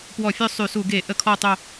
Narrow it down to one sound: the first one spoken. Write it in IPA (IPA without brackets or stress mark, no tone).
p